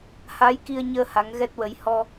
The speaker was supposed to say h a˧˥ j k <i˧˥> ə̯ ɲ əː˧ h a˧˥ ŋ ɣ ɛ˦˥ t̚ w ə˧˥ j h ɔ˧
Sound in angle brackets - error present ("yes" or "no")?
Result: yes